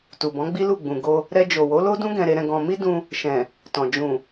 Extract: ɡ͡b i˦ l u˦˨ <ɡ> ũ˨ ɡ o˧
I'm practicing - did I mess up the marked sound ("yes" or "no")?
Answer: yes